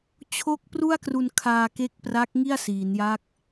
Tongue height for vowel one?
mid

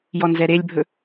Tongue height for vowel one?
mid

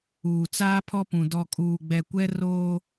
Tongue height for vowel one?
high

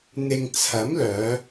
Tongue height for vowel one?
high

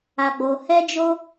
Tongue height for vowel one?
low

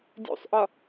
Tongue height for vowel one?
high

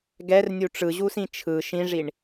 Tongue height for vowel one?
mid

